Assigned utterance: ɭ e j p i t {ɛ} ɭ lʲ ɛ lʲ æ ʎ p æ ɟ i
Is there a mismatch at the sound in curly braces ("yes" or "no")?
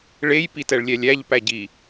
no